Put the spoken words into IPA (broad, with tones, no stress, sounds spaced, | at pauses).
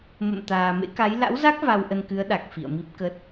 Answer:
m ə̰˧˨ m t̪ aː˨˩ m ḛ˧˥ k a˨˦ j l a̰˧˥ w z a˦˥ k̚ v a˧ w ʔ ə˧ n k ɨ˨˦ ə̯ ɗ a˨˩ k̚ f ḭ˧˨ ə̯ m i˦˥ p̚ k ə˦˥ t̚